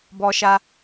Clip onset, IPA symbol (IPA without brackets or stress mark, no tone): b